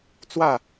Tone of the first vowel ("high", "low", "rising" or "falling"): falling